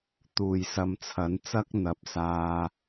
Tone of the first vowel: low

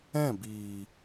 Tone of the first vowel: falling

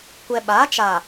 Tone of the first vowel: high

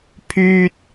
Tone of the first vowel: low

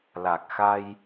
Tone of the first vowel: low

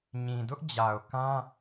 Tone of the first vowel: low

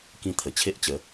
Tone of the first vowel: high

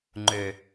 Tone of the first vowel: low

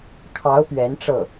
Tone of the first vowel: rising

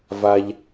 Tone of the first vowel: low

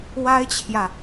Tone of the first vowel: high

